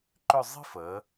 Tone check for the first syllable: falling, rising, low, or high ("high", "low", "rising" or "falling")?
falling